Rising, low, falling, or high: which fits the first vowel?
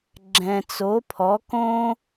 low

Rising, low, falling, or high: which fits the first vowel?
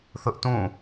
high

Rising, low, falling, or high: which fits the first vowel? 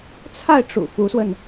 falling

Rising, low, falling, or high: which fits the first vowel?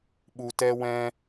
low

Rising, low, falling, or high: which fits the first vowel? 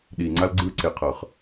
low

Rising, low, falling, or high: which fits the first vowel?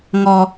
high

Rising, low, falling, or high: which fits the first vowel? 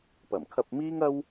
low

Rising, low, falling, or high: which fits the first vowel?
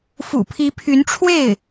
low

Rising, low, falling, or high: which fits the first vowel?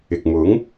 low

